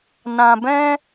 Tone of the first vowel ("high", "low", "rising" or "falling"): low